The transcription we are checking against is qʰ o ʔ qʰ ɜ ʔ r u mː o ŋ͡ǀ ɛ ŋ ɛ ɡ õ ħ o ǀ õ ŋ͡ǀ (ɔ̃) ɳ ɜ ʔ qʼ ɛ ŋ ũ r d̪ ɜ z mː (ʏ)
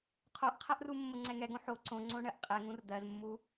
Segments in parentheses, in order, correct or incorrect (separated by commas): incorrect, incorrect